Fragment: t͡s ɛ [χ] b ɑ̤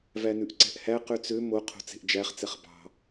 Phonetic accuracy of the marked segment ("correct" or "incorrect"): correct